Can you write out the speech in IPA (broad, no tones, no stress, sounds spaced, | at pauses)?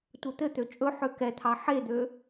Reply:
tʷ ɛ t̪ ɘ t̪ ø t͡ʃʼ ɵ ħ ø k ɛ t̪ʰ ɑ ħ e d̪ ø